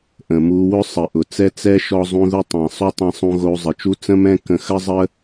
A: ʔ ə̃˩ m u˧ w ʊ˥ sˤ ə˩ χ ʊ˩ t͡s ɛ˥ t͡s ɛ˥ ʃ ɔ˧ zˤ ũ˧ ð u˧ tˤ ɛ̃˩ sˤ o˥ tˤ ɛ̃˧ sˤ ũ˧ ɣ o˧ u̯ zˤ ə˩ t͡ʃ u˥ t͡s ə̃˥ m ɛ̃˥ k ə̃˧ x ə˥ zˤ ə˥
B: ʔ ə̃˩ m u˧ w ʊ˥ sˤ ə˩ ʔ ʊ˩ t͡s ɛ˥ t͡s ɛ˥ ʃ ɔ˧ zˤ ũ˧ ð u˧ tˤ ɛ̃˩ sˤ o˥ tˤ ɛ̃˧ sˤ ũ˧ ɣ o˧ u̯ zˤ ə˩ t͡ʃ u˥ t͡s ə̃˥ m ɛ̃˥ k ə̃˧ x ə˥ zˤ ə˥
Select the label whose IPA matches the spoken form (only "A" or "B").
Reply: B